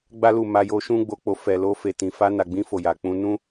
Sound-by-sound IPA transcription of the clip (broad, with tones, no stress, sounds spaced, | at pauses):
ɡ͡b a˦ l u˦˨ m a˧ j o˧ ʃ ũ˦ ɡ͡b o˧ k͡p o˧ f ɛ˨ l o˧ f e˨ t ĩ˨ f a˧ n a˨ ɡ͡b ĩ˧ f o˨ j a˨ k͡p ũ˧ n ũ˦